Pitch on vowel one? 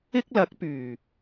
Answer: high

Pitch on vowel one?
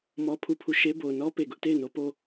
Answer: high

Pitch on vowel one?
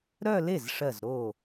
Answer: falling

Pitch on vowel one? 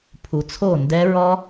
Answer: low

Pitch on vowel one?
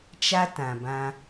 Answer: high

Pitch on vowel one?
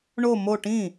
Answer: falling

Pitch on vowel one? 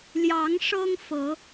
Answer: rising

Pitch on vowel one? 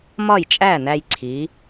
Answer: falling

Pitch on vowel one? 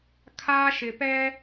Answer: high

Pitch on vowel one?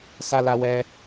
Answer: high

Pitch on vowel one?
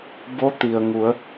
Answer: rising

